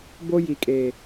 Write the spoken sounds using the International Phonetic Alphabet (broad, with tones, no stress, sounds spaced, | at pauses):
b o˦ j i˨ kʼ eː˨